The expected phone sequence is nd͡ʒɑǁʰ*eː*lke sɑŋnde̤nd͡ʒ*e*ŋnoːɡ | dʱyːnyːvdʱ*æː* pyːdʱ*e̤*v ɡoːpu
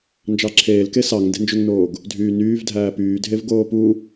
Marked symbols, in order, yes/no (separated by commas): yes, no, yes, no